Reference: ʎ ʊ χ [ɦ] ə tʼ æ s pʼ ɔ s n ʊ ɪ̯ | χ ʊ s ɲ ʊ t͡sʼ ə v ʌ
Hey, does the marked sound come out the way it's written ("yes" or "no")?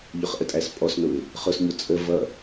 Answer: no